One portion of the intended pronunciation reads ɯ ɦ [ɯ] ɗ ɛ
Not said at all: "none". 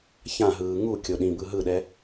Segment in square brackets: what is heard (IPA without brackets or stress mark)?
ɯ